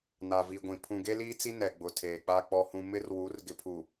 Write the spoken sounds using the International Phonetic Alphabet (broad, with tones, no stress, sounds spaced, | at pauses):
n a˨ v i˨ ɡʷ ĩ˨ pʰ ũ˨ ɡ e˦ l iː˦ t͡s i˦ n ɛ˨ ɡ͡b ʊ˨ tʰ eː˨ k͡p a˦ k͡p ɔ˨ h ũ˨ m ɪ˦ r w u˨˦ r ɡ ɪ˨ pʰ u˨